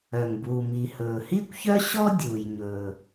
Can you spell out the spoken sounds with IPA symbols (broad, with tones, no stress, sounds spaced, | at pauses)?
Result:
œ˩ ŋ b uː˩ m i˩ h ɵː˩ h iː˥ kʷ ç œ˥ ɕ ɔ˥ dʲ uː˩ j ɲ ɵː˩